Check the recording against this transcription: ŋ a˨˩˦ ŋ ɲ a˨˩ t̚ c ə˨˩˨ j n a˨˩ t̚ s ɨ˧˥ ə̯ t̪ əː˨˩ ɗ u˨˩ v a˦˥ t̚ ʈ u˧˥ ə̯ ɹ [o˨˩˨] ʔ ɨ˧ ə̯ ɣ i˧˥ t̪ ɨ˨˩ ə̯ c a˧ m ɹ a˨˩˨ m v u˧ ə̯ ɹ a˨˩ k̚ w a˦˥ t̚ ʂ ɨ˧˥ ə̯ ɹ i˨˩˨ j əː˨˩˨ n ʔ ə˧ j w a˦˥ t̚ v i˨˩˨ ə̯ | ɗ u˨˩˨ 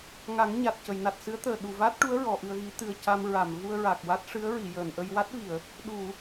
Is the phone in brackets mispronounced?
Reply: yes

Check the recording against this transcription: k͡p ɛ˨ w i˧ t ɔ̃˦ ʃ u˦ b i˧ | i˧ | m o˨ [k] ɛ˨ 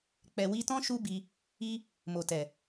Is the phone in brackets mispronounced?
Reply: yes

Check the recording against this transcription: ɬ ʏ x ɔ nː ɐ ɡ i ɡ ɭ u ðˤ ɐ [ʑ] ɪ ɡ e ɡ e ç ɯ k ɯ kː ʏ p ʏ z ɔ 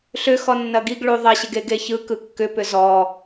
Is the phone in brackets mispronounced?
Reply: yes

